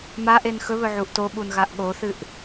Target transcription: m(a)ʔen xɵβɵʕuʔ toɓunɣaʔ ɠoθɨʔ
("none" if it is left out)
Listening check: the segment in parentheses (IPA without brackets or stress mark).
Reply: a